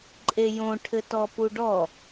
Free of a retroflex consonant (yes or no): no